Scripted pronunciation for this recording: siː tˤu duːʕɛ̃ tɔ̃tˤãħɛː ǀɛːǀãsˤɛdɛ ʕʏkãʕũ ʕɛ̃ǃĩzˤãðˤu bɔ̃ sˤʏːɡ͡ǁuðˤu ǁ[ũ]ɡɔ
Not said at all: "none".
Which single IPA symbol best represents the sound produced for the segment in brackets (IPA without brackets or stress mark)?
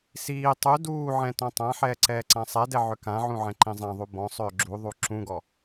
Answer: ũ